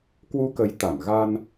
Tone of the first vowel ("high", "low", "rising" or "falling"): rising